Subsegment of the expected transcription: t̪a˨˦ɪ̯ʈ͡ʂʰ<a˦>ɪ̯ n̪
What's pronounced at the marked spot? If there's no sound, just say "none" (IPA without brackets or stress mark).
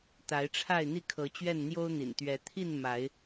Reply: a˥˨